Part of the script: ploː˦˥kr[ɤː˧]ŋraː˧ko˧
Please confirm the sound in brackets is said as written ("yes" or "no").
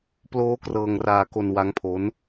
yes